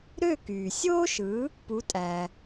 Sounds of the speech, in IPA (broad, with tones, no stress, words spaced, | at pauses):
ɾø˥˩kyː˩ sʲoː˥ʃɯ˩˥ | pu˩˥tʼæ˩